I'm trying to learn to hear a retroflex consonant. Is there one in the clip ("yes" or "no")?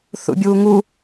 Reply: no